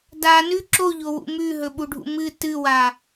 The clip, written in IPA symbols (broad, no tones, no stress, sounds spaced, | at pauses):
d a n ʉ ǁ o ʎ o w ṵ m ʉ ɦ ɵ ɓ u ɖʱ ṵ m ɨ t ɨ w a